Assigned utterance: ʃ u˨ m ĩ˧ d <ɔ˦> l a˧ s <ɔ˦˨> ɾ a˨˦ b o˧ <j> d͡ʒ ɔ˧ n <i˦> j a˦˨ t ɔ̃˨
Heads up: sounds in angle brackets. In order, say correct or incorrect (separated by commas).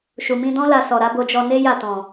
incorrect, incorrect, incorrect, incorrect